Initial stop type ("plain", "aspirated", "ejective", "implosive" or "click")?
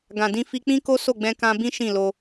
plain